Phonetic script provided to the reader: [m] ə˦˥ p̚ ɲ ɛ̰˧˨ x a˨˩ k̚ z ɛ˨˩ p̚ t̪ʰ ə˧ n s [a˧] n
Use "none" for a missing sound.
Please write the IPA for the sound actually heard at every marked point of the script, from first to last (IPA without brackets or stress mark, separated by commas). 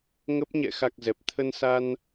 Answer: ŋ, a˧